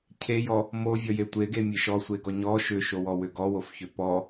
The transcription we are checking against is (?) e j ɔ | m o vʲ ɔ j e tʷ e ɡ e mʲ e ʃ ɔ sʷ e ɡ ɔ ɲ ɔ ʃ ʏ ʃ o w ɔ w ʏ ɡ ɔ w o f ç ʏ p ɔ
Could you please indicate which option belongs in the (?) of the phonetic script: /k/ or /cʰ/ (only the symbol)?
cʰ